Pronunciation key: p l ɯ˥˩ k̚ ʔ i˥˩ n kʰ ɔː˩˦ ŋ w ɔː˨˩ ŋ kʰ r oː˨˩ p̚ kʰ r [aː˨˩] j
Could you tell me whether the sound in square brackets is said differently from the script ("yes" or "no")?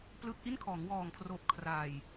no